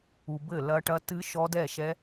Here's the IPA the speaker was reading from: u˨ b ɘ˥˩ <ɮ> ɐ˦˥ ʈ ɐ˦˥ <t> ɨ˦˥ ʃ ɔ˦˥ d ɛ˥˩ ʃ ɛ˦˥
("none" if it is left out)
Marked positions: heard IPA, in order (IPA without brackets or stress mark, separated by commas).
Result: l, t